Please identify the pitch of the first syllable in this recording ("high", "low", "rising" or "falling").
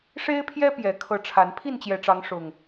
high